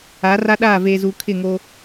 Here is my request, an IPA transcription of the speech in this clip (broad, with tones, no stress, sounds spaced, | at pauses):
aː˨˦ r a˦ ɗ aː˦˨ v eː˨ z uː˨ kʰ ɪ˦˨ ŋ o˦